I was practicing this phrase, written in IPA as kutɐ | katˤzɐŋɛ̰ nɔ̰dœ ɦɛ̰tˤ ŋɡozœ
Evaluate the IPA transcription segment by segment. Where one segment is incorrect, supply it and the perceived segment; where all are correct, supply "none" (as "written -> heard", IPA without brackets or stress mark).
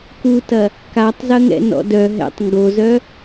none